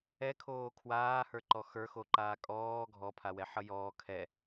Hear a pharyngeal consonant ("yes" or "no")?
yes